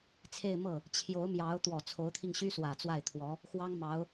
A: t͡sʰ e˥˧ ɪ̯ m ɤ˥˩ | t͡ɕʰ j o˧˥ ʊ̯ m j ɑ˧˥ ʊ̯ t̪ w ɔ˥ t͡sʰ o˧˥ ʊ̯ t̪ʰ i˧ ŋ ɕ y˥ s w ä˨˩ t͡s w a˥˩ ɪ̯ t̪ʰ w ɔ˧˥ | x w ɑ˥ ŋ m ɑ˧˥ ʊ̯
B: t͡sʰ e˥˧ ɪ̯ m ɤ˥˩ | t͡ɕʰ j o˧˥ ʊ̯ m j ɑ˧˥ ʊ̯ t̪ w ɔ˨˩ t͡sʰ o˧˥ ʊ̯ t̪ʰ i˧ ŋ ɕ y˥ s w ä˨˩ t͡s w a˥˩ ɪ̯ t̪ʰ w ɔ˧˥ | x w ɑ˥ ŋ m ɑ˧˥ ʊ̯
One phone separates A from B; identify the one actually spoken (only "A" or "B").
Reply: B